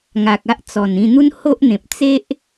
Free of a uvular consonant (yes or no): yes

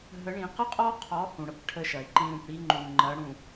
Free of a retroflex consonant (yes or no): no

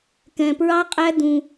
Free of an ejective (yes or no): no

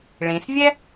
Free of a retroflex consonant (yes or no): no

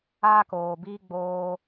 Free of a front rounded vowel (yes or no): yes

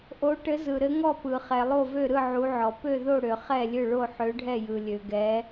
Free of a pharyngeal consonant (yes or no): no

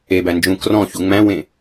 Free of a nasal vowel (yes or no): no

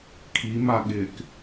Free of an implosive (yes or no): no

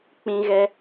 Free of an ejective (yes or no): yes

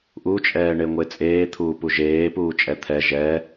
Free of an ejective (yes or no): no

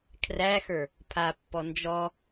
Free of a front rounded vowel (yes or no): yes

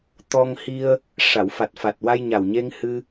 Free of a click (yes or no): yes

